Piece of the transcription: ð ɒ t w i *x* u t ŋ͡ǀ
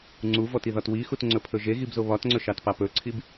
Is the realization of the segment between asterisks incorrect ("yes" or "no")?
no